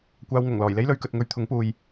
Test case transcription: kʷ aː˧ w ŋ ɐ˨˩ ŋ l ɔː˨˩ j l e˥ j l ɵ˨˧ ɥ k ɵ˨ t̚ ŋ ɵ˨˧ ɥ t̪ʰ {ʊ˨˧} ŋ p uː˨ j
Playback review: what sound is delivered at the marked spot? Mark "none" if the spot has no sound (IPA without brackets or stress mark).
ʊ˨˥